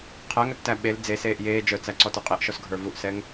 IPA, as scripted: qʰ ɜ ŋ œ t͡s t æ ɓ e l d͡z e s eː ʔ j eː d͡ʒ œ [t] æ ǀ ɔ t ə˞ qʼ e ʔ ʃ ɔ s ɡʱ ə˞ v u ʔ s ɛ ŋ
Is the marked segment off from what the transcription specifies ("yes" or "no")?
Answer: yes